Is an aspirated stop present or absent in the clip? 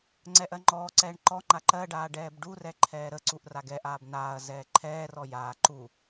present